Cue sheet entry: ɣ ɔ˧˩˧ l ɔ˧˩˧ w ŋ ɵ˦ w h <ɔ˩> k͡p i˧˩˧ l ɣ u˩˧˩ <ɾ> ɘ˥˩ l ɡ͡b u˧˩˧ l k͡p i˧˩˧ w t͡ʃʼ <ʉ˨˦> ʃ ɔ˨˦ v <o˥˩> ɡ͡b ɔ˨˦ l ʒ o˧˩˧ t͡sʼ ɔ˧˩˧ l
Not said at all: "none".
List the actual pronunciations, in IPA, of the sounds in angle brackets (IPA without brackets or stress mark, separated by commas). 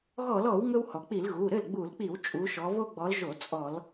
ɔ˩, ɾ, u˨˦, o˦